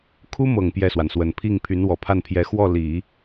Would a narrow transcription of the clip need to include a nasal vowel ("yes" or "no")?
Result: no